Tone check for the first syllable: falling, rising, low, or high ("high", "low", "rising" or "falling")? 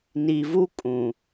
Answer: low